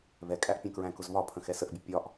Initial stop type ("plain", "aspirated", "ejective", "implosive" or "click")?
ejective